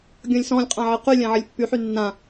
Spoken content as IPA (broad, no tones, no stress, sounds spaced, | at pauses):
ɡʲ ɔ̃ lʲ s ɔ̃ lʲ qʼ ã ʕ e q y lʲ ã ʕ ə lʲ pː y ħ y nː ã